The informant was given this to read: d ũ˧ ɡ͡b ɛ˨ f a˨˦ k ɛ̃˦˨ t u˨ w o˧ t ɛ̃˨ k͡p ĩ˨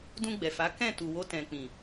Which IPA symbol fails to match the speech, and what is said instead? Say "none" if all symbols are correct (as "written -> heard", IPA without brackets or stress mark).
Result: none